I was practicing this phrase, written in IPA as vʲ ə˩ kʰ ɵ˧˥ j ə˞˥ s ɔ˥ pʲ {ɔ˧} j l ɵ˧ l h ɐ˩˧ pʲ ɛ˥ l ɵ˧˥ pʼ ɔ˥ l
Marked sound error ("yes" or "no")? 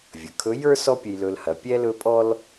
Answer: yes